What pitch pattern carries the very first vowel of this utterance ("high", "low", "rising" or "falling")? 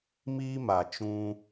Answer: high